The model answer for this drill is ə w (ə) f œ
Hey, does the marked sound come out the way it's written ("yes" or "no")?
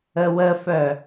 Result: yes